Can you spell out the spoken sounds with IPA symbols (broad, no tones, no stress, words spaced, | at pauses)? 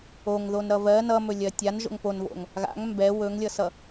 oŋ ðonɾʌvɜ nʌ mɵlʲɜtʲan ʒo̰ŋponvo̰ŋ | ɣa̰ŋ mbɛ wɵŋlʲʌsʌ